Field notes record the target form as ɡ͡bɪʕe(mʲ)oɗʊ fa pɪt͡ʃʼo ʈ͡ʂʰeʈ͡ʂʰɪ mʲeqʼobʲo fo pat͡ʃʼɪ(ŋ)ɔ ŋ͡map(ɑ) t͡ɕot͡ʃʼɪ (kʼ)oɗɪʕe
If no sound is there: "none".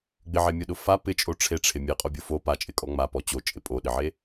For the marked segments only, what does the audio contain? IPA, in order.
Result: mʲ, kʼ, ɔ, pʼ

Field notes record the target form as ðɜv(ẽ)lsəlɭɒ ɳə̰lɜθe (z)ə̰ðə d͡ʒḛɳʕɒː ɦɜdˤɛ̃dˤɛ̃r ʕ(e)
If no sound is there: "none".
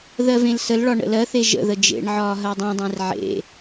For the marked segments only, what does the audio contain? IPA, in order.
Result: ẽ, ʒ, ḛ

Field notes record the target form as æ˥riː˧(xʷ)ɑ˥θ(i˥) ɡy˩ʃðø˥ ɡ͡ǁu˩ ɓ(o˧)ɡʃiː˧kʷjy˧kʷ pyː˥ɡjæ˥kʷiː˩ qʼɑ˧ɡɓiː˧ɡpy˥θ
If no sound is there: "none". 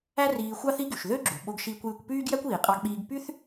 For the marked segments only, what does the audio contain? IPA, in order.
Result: xʷ, i˥, o˧

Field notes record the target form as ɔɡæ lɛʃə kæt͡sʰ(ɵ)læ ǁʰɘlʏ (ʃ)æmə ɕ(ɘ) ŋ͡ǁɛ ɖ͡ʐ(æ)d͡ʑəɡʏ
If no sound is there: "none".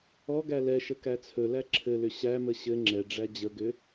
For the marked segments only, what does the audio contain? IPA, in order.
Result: ɵ, ɕ, ɘ, æ

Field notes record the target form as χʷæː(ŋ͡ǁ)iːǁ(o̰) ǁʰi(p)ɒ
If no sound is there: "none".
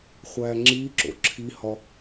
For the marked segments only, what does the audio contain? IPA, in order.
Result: ŋ͡ǁ, o̰, h

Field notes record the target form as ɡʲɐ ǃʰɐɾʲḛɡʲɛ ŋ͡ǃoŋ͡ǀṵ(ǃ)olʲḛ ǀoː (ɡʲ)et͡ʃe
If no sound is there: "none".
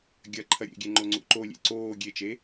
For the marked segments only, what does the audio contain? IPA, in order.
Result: ǃ, ɡʲ

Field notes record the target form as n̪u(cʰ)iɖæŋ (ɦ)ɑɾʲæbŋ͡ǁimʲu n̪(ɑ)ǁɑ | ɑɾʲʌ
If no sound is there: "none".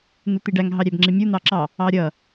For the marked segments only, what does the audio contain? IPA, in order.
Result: t̪, ɦ, ɑ

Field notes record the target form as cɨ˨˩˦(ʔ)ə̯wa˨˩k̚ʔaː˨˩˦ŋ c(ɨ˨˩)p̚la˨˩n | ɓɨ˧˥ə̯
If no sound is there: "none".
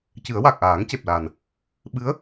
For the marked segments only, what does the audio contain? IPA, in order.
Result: none, e˨˩

